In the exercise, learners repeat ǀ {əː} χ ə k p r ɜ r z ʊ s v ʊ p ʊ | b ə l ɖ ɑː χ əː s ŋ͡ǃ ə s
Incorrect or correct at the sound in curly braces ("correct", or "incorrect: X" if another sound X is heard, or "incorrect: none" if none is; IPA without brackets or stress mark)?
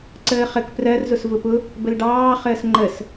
correct